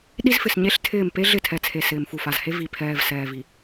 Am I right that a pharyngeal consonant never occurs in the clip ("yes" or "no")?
yes